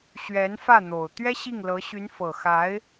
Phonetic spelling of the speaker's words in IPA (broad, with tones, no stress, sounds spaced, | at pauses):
ɕ ɥ ɛ˧˥ n f ä˥˩ n̪ o˨˩ ʊ̯ t̪ ɥ ɛ˥ ɕ i˥˩ ŋ l ɤ˧˥ ɕ y˧˥ n f ɤ˨˩ x a˧˥ ɪ̯